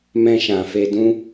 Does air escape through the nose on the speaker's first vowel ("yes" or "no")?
yes